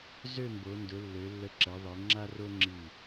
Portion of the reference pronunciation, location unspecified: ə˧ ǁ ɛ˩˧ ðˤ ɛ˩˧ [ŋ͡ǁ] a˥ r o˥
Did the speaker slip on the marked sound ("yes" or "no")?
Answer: no